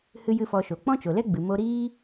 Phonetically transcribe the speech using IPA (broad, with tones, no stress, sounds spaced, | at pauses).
h ɨ˦ j ɨ˦ f ɔ˧ ʃ o˨ k͡p ɔ̃˦ t͡ʃ o˨ l ɛ˦ ɡ͡b ɨ˨ m o˧ ɾ iː˦